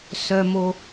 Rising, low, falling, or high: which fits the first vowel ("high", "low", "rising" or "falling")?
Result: high